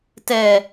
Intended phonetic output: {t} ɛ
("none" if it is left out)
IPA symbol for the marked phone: t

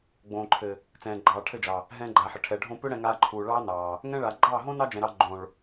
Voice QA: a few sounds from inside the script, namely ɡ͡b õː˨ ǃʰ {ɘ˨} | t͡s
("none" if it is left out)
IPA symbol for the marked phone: ɘ˨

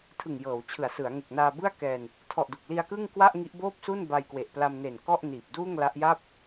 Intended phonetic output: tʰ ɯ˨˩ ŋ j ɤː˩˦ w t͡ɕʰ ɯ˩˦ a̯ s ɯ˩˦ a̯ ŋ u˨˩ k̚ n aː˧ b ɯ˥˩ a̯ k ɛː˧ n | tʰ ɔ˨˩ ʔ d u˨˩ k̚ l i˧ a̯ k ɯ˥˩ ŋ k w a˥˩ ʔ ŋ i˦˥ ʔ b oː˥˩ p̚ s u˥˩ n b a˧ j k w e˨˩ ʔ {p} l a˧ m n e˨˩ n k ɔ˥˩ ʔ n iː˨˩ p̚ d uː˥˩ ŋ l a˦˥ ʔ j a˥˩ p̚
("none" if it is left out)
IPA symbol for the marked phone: p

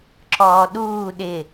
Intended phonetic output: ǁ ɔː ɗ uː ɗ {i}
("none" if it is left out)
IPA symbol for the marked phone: ɪ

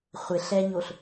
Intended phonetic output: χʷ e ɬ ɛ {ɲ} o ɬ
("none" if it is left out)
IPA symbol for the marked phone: ɲ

